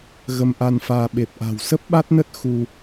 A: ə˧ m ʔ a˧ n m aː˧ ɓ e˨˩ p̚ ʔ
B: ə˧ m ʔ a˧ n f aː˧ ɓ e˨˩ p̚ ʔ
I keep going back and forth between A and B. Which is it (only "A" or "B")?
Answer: B